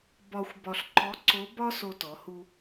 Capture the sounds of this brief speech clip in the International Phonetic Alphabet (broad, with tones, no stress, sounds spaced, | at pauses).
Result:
b ɒ˧ xʷ b ɒ˧ ɬ ǃ ɔ˧˥ ǀ o˧˥ b ɒ˥ s o˧ t ɔ˩˧ h u˧